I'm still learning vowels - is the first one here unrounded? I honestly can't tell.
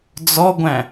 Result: no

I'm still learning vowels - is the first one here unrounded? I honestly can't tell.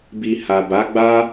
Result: yes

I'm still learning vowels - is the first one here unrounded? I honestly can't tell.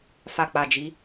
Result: yes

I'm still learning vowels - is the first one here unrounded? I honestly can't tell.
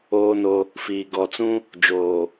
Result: no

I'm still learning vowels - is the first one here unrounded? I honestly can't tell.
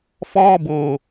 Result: no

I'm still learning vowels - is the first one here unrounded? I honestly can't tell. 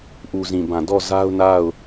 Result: no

